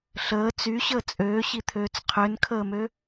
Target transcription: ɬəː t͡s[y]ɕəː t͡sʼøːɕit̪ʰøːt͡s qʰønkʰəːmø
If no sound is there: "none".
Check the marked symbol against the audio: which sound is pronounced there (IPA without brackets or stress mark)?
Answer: y